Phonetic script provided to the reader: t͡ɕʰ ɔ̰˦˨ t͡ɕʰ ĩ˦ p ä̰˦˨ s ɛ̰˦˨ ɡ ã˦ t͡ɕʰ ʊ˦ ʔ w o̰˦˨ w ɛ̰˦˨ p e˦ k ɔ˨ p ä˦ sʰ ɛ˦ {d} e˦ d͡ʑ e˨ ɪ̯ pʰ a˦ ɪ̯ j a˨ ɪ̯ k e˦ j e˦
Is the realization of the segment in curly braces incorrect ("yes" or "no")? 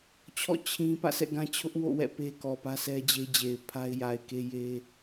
yes